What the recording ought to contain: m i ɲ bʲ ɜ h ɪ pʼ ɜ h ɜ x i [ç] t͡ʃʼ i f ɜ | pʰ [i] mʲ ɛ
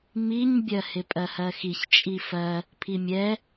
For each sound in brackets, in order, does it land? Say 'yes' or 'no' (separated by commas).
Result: yes, yes